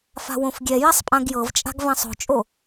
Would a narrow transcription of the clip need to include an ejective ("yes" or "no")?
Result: yes